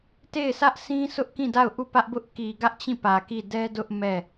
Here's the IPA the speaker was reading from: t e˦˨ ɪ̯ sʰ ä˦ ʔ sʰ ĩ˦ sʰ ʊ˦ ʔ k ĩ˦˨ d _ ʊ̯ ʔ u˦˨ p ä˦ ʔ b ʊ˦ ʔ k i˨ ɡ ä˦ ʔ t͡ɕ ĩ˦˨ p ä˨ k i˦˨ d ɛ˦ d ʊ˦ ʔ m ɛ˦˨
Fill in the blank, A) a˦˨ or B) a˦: A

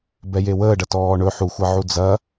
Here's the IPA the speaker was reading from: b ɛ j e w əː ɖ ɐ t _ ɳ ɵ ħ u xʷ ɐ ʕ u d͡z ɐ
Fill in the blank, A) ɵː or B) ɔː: B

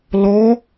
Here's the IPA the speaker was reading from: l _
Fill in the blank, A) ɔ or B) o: A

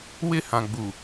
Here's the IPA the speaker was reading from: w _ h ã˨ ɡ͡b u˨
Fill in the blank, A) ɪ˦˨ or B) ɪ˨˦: A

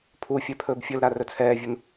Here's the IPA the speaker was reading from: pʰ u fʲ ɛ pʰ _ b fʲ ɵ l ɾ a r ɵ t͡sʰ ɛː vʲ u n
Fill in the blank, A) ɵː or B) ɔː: A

